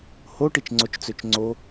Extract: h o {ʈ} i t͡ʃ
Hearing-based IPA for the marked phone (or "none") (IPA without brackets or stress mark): ʈ